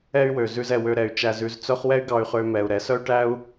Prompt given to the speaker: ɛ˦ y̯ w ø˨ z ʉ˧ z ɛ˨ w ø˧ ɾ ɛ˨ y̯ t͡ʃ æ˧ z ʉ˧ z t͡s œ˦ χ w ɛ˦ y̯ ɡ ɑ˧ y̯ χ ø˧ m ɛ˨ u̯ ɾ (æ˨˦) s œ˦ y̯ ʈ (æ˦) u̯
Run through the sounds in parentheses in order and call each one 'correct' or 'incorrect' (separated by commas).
incorrect, correct